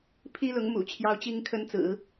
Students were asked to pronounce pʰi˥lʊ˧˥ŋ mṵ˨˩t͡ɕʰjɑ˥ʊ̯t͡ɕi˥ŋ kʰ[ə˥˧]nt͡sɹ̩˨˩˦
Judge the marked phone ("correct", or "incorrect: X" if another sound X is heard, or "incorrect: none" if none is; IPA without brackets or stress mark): incorrect: ə˥